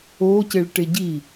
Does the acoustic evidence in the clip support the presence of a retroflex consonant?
yes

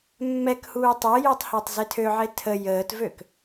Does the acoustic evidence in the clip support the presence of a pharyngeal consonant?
yes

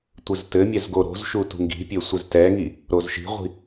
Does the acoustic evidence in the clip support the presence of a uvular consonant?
yes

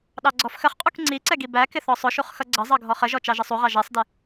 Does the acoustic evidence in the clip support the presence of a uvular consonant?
yes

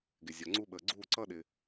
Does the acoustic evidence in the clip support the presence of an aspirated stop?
no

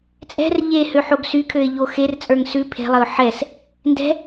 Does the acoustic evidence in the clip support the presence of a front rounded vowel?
yes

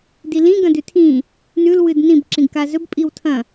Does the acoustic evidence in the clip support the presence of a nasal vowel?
yes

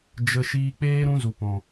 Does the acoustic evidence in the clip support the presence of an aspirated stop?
no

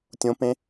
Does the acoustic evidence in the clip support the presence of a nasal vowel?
yes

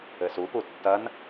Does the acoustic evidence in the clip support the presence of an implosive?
no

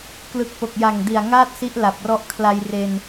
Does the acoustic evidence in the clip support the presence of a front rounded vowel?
no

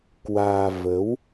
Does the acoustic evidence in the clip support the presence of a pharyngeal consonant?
no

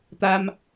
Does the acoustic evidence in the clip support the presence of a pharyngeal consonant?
no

